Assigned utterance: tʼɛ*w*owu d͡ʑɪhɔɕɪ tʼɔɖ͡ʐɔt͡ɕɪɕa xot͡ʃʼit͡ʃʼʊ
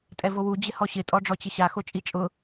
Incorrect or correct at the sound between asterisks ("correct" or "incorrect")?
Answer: incorrect